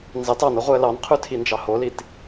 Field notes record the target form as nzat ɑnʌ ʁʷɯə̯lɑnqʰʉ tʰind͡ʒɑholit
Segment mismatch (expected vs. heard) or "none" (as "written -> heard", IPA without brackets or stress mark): a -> ɑ